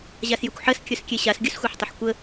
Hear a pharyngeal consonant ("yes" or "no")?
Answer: yes